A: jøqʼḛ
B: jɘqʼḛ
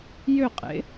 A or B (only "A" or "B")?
A